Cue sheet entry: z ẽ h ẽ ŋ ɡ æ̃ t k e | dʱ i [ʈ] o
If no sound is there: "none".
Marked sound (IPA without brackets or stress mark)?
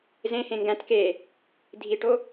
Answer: ʈ